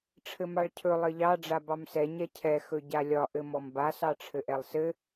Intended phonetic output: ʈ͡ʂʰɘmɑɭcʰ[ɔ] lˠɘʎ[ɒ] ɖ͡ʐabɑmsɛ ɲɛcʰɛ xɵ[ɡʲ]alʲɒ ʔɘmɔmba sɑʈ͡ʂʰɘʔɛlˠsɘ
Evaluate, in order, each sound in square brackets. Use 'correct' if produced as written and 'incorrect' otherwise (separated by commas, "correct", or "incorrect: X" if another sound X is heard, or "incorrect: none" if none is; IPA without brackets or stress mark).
incorrect: ɵ, incorrect: ɑ, incorrect: ɟ